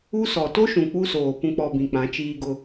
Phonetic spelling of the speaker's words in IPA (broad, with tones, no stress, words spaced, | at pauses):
u˦sɔ˨ to˦ʃũ˨ k͡pu˦soː˨ pũ˨k͡pɔ˨ bĩ˨k͡pã˨˦t͡ʃiː˦ɡʊ˦